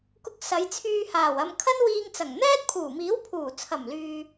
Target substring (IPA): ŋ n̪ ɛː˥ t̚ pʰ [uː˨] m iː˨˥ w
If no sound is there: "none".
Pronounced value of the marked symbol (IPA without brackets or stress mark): uː˨˩